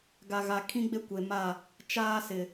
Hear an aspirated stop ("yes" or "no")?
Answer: yes